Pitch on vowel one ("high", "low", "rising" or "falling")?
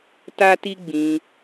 high